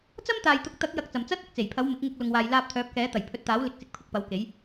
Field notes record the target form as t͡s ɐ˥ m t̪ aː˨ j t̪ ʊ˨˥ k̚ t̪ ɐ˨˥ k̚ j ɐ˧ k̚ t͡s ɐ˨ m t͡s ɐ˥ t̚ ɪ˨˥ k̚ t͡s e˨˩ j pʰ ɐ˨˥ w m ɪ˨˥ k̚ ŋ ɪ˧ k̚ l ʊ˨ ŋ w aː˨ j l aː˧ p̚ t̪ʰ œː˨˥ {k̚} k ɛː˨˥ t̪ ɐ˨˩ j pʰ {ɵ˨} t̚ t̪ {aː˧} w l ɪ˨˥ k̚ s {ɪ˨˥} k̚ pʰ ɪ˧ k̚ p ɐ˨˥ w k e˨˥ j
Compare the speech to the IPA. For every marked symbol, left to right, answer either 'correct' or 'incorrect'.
incorrect, incorrect, incorrect, correct

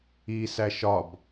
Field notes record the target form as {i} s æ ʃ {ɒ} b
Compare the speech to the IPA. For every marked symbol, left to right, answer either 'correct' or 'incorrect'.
correct, correct

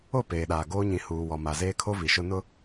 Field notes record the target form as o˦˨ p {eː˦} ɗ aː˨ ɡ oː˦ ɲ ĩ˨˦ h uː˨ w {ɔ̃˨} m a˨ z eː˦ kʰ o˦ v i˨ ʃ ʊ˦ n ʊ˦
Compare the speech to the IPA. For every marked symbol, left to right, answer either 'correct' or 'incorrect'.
incorrect, incorrect

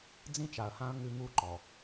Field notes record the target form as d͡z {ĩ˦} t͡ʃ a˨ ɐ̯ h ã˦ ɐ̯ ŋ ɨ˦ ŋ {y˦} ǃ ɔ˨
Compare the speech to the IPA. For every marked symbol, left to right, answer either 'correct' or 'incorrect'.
correct, incorrect

